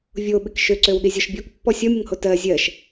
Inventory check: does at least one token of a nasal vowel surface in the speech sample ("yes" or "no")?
no